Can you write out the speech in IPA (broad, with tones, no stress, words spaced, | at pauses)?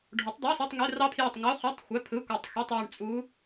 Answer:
ɖʱo˨˥tˤdˤɑ˧˥˧sɯ˧˥˧tˤŋø˧˥˧ rɑ˦˥pʰjø˦˨tˤŋo˧˥˧ χy˧˥˧tˤ xʷæ˧˥˧pʰɯ˧˥˧kʷæ˦˨tˤ xy˧˥˧tˤjy˦˨ɳt͡sʼu˦˥